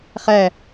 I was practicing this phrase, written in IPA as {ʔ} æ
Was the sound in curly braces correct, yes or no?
no